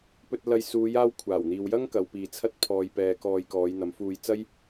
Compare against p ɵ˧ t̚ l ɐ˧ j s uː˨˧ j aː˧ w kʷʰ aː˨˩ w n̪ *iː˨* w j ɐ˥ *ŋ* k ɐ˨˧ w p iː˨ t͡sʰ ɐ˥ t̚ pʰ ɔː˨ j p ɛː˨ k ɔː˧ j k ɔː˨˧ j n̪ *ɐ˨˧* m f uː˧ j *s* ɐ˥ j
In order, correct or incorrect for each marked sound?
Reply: correct, correct, correct, incorrect: t͡s

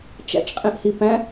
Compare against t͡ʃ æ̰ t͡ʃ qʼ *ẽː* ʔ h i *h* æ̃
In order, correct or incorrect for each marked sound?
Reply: incorrect: ẽ, incorrect: p

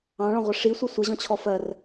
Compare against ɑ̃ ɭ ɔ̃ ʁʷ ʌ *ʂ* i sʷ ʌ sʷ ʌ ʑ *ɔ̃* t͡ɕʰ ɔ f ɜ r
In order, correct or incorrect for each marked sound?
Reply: correct, correct

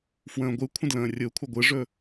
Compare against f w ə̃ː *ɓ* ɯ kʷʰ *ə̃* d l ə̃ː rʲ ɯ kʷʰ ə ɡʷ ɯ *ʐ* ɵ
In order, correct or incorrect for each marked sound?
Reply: incorrect: ɡʷ, correct, correct

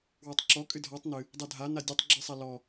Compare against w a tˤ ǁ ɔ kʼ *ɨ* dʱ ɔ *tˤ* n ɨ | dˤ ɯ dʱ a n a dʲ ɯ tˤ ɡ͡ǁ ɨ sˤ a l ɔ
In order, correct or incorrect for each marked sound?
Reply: correct, correct

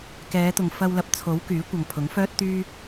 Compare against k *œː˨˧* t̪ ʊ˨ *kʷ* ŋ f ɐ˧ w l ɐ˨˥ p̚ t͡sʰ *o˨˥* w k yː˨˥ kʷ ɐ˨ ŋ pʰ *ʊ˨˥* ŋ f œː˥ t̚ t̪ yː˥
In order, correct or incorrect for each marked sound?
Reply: incorrect: ɛː˨˧, incorrect: none, correct, correct

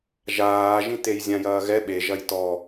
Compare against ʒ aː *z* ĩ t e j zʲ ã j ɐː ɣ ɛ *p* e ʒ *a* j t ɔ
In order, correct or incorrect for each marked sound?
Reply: incorrect: ʒ, incorrect: ɓ, incorrect: ɐ

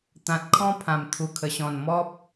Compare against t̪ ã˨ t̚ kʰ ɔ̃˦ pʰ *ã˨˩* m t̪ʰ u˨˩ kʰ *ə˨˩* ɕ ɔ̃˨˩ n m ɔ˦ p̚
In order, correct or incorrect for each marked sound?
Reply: correct, correct

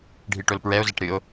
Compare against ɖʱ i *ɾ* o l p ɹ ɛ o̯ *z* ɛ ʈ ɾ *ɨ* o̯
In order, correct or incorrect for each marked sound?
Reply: incorrect: ʈ, correct, correct

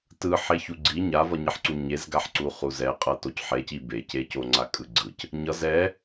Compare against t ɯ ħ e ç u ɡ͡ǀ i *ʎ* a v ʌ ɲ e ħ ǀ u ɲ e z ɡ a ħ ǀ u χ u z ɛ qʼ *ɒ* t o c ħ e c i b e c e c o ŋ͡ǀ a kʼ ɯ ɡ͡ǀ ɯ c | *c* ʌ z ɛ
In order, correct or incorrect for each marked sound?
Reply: incorrect: ɲ, incorrect: ʌ, incorrect: ɲ

